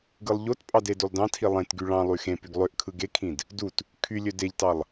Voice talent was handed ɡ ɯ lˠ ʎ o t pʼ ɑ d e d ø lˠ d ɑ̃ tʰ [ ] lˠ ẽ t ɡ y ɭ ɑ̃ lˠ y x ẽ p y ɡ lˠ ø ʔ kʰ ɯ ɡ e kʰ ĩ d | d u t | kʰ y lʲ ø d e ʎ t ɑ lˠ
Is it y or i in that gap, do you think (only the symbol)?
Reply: i